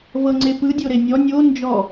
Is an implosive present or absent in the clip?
absent